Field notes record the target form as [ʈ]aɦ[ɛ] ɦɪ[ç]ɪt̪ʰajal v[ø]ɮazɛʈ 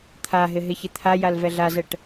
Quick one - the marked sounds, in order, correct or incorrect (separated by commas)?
incorrect, incorrect, correct, incorrect